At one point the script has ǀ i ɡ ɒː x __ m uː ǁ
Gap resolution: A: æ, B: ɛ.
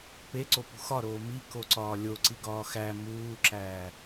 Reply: A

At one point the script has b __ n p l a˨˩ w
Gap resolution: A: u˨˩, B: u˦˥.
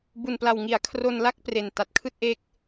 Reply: A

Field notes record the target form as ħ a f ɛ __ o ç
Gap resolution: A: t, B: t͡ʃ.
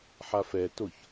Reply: A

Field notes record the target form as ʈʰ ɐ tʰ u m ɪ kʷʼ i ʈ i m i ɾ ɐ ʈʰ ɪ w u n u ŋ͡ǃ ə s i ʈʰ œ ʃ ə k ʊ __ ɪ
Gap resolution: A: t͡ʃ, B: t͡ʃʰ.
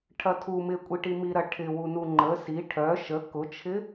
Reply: B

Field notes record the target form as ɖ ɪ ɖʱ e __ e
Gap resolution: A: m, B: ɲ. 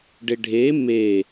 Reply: A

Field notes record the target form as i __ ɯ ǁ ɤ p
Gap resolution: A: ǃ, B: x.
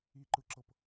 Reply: A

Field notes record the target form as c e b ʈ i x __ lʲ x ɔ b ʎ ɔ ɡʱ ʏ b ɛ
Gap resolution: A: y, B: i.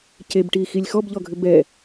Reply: B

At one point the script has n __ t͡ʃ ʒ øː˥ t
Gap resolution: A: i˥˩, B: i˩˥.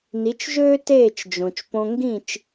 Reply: B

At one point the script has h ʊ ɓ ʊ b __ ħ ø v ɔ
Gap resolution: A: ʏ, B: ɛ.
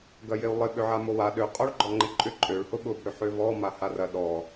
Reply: A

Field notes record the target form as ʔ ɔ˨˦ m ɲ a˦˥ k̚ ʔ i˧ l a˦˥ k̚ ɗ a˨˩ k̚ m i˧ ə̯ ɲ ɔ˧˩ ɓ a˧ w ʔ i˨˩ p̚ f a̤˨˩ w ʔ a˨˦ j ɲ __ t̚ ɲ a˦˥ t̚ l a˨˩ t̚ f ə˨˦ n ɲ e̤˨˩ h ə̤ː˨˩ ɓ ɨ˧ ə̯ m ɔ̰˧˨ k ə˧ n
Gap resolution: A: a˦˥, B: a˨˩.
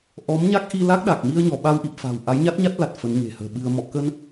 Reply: A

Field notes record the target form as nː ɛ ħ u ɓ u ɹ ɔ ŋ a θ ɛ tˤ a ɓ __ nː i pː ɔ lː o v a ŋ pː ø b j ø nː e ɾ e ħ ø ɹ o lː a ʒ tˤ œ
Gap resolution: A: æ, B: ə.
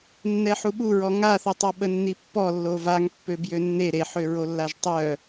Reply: B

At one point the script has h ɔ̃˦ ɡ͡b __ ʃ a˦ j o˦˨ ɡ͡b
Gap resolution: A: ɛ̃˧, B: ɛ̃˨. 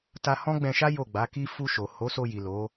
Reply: A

